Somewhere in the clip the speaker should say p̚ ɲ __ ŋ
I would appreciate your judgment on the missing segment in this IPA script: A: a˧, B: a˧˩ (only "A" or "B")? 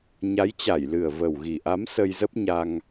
A